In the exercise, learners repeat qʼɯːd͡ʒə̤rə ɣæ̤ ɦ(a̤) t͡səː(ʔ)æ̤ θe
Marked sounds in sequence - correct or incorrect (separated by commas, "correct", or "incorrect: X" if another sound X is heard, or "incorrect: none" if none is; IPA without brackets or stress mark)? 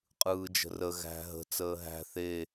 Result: incorrect: ə̤, incorrect: ɦ